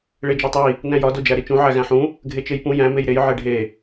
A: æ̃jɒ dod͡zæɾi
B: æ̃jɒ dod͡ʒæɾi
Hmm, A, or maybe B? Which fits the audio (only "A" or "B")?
B